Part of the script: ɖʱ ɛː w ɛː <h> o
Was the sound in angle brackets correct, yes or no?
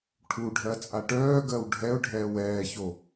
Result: no